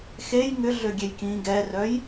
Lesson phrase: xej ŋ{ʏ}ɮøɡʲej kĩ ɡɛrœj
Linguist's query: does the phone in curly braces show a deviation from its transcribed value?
no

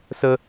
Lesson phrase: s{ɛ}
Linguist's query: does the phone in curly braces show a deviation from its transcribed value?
yes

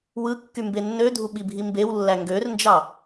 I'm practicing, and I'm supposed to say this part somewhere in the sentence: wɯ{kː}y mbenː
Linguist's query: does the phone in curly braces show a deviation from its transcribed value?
no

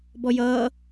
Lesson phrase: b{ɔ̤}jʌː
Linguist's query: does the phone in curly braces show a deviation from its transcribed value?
yes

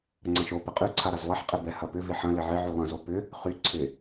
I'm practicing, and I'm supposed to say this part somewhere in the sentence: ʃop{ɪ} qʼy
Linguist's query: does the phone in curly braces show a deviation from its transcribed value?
no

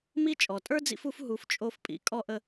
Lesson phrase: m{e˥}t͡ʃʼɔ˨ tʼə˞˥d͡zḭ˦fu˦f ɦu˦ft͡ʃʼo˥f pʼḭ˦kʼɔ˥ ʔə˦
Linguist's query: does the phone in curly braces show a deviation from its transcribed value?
yes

